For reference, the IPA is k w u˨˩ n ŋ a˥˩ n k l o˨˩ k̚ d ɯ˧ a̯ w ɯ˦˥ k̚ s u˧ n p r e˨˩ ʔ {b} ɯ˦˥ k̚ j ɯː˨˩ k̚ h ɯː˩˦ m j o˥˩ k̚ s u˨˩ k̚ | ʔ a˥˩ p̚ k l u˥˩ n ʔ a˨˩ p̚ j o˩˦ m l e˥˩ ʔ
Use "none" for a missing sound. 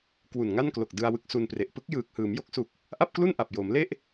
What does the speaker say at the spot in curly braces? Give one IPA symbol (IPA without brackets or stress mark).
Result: p